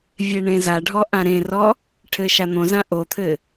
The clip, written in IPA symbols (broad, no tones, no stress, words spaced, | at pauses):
vʲeɳẽzaɖʱɔ ʔãɾẽrɔ | ʈʰɘʃan̪õzã ʔot̪ʰɘ